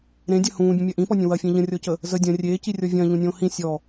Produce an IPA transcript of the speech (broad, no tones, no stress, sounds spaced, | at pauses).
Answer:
ɾ ẽ dʲ ɐ h ũː bʲ ə̃ mʲ ɐ ʔ ĩ p ɔ nʲ ə̃ w ɐ fʲ ẽ ʎ ə̃ rʲ ɔ c ə | z ə dʲ ɐ̃ rʲ eː c i rʲ ɔ vʲ ɐ̃ː ʎ ũ nʲ õː h ĩ sʲ ɔ